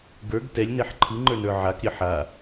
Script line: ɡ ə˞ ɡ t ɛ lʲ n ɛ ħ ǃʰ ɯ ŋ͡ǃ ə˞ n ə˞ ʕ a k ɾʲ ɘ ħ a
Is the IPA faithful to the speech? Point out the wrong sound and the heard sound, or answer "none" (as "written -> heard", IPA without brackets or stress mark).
none